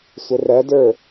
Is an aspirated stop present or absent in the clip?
absent